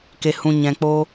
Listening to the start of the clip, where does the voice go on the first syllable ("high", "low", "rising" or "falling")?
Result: low